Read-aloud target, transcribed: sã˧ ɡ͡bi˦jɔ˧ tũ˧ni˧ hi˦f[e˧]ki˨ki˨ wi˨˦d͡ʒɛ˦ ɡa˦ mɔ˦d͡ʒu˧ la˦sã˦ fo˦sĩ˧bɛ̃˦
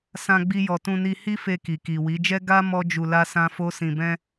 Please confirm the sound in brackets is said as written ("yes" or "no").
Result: yes